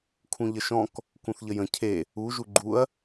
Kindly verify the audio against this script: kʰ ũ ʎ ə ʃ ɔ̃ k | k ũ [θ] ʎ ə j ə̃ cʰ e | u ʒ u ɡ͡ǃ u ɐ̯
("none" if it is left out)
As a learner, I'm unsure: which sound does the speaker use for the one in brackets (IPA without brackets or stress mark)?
θ